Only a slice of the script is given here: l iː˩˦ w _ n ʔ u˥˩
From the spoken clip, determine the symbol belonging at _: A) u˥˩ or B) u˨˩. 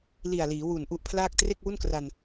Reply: B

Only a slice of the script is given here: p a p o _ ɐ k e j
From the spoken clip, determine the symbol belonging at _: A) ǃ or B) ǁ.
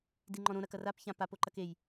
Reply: A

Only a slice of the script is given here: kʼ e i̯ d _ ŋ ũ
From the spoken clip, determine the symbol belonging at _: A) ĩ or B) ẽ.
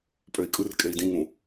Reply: A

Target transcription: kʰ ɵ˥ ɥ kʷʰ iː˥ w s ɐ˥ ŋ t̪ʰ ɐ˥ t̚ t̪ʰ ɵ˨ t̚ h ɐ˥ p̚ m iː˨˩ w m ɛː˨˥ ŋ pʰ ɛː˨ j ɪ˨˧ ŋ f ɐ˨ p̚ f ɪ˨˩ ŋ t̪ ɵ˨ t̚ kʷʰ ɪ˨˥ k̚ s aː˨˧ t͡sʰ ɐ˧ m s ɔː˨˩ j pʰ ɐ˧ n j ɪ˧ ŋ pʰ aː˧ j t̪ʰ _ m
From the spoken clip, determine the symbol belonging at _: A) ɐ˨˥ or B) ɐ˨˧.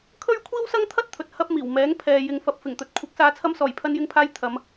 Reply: B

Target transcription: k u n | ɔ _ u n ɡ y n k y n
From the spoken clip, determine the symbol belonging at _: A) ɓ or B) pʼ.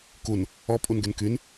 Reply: B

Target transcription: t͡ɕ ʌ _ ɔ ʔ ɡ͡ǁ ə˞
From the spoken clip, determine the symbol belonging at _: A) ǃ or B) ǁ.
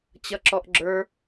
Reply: B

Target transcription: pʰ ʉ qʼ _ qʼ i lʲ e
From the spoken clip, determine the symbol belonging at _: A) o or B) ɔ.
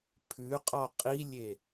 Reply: B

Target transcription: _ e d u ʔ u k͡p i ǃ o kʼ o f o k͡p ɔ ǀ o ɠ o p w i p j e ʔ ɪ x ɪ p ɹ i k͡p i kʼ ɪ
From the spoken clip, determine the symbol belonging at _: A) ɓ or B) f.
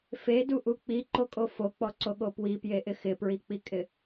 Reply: B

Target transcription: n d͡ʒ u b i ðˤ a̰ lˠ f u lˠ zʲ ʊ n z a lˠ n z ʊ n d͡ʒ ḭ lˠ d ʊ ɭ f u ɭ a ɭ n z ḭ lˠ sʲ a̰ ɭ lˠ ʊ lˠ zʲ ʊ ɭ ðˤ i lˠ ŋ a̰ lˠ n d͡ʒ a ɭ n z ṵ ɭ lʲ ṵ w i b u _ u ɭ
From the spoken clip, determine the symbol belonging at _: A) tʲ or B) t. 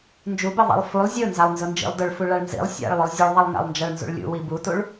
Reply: B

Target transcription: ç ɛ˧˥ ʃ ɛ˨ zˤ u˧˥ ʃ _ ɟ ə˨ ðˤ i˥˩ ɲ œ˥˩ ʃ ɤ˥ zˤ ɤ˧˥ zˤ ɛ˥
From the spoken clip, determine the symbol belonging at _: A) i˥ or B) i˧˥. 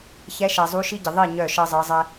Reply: A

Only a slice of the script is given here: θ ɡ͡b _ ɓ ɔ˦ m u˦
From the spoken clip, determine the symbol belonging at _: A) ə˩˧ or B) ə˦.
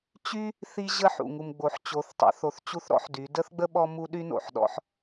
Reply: B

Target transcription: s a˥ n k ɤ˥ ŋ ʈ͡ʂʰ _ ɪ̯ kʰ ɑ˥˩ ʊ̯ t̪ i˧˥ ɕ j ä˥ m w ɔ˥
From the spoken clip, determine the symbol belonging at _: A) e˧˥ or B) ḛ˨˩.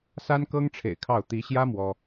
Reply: B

